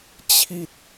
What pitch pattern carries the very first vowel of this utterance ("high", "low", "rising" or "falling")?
falling